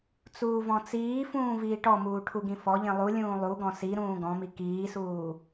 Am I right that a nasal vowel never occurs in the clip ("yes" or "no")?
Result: no